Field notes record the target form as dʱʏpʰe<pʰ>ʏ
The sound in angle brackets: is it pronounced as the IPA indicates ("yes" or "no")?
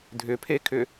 no